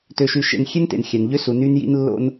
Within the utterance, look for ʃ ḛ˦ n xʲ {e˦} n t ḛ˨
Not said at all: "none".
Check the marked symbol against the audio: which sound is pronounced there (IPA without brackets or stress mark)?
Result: e˦